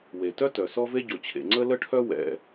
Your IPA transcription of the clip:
w e˩ t œ˥ t œ˩ s ɔ˥ v e˥ ɟ o˩ t͡ɕʰ ḛ˩ ŋ͡ǀ ə˥ l ə˥ ʈʰ œ˥ w ɛ̰˩

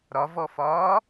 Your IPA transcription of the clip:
ɾ ɒ v ɔ f ɒː

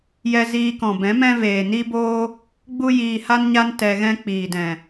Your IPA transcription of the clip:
j ɛ˧ z iː˧ k ɔ̃˨ b ɛ̃˨˦ m ɛ̃˦ v eː˨ n i˦ b oː˦ | ɡ͡b u˦ j iː˧ h a˦ n ɲ a˦ n t ɛ˧ ɣ ɛ̃˦ k͡p iː˨ d ɛ̃˨

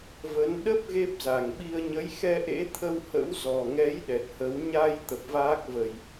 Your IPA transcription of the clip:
v ə˨˦ n ɗ ə˦˥ p̚ ɣ e˦˥ p̚ z a˨˩ ŋ ɓ i˧ ə̯ ɲ ə˨˦ j x ɛ˧ ʔ ḛ˧˥ t̪ʰ ə˧ w h ə̰˧˥ w z ɔ˨˩ ŋ ɛ˨˦ j ɗ ɛ˨˩ t̚ h ə˨˦ w ɲ a˧ j t̪ ə˨˩ p̚ v aː˦˥ k̚ v ə˨˩ j

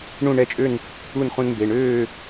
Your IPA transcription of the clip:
ɳ ũ˥˨ ɳ ɛ˥˨ t͡ʃʼ ø˥˨ n | u˥˨ n χ ũ˦ n m b e˩˧˩ ɳ øː˥˨

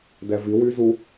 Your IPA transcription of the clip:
d ɛ v i w y z u

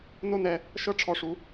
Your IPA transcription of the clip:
n o˦ n ɛ˧ | ʃ ɤ˦ ʈ͡ʂʰ ɔ˧ ʂ u˧

